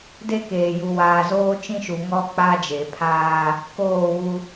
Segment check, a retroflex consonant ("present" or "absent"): absent